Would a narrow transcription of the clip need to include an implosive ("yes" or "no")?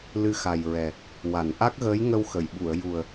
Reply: yes